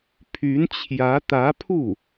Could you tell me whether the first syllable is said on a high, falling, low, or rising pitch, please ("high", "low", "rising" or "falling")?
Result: rising